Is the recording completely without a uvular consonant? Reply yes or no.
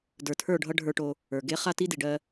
no